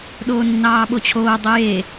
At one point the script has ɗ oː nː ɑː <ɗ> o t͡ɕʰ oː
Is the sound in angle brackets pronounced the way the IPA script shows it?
no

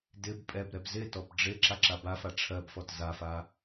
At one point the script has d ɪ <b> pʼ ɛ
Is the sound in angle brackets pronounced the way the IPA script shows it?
yes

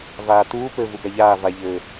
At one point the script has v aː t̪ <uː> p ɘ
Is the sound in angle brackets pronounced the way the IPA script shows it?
yes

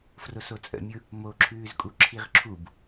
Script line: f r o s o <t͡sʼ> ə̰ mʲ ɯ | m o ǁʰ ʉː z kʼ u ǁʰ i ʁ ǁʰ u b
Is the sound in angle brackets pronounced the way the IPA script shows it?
yes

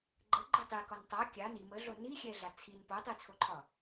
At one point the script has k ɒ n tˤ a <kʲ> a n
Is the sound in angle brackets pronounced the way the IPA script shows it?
yes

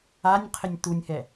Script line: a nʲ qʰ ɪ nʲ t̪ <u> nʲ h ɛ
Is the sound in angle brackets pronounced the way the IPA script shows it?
yes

